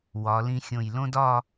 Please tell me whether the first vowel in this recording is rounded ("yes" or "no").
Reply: yes